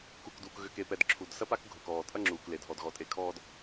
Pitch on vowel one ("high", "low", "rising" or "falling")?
low